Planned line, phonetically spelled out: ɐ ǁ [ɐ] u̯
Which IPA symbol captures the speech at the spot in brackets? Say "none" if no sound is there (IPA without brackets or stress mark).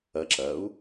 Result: ɐ